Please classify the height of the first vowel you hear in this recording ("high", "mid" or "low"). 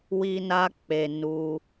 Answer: high